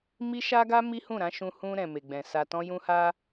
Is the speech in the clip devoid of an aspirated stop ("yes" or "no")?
yes